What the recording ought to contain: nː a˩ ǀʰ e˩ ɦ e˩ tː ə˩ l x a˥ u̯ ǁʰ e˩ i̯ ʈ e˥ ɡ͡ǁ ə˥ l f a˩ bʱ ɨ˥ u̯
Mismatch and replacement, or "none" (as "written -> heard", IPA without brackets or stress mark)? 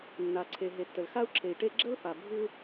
none